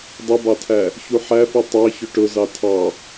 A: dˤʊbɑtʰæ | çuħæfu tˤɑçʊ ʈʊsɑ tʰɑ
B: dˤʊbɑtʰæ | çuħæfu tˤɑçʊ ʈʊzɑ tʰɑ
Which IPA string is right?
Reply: B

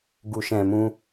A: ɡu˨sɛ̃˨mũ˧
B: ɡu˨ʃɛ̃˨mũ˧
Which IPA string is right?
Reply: B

